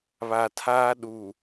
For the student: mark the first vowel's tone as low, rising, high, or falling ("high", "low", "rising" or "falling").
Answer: low